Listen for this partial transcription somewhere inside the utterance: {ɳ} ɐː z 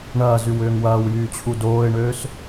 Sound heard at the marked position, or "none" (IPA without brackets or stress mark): ɳ